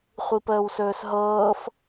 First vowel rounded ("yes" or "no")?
no